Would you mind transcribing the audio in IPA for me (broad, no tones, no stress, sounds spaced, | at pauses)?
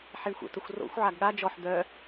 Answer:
ħ e ɳ xʷ ə̰ t ə xʷ r o̰ xʷ ʕ a ɡ ɠ a d͡ʒ ɔ ħ d̪ œ